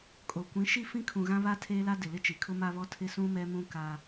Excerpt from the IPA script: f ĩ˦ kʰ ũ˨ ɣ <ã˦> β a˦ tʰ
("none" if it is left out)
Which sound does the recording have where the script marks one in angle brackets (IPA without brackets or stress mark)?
ã˦